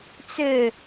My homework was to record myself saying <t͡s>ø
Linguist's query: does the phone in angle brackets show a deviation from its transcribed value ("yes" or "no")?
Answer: no